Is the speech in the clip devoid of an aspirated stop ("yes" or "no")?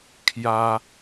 no